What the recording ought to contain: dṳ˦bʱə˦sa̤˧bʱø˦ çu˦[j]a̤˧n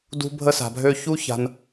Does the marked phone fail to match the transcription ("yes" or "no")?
yes